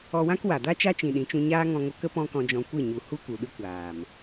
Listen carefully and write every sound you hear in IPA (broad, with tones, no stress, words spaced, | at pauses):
ɔ˧wã˦kwa˨ da˦ t͡ʃa˦t͡ʃĩ˨ɗĩ˨˦t͡ʃũ˧ ɲaː˦ŋɔ̃˧ŋo˧kə˦ pɔ̃˦kɔ̃˧d͡ʒɔ̃˧kʷɨ˦˨ ɲu˨ hu˦ku˨ ɗɨ˦kʷaː˨m